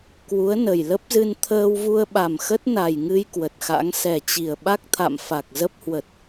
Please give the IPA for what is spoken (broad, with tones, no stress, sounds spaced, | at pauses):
k w u˨˦ ə̯ n ə˨˩ j l ə˦˥ p̚ z ɨ˧ n t̪ʰ əː˧ w v u˧ ə̯ ɓ a˨˩ m x ə˦˥ t̚ n a˨˩ j ŋ ɨ˧ j k w ə˨˩ t̚ x a̰˧˥ ŋ s ɛ˨˩ t͡ɕ i˨˩ ə̯ ɓ a˦˥ k̚ t̪ʰ a̰˧˨ m f a˨˩ k̚ z ə˦˥ p̚ h w ə˨˩ t̚